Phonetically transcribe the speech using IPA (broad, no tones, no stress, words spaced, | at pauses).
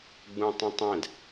ɡ͡bũtˤĩtˤɛ̃d